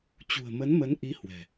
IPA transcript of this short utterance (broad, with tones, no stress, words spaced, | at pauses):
t͡ɕṳ˨˩ə̯mə˨˦nmə˨˦n ʔi˨˦ hwɛ̤˨˩